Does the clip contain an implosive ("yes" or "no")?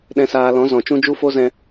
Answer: yes